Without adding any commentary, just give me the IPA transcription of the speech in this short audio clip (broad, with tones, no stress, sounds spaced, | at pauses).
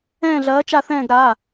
ɛ̃ː˦˨ ɮ ɐː˨˥ t͡ʃ a˦˨ θ ɛ̃ː˦˨ ɡ ɾ a˩˧˩